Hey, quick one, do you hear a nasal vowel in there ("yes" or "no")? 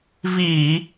no